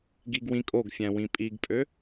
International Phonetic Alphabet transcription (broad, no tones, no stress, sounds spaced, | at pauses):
ɡ i ɡ w ĩ kʼ o ɡ fʲ æ̃ w ĩ pʼ i ɡ pʼ ø